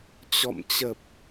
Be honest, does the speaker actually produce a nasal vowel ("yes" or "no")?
no